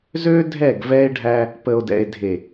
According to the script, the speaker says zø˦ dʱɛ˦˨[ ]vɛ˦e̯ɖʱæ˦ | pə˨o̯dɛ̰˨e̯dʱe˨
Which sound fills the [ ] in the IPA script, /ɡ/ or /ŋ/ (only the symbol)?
ɡ